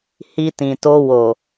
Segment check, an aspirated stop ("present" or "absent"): absent